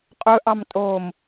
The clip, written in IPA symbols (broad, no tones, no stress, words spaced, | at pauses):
qʼɵʔɑmtʼoːm